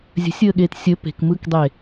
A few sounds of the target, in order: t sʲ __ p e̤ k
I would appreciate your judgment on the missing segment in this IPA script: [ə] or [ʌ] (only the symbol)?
ə